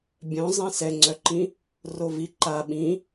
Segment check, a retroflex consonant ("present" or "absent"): absent